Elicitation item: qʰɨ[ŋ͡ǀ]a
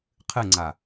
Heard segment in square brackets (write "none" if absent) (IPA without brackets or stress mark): ŋ͡ǀ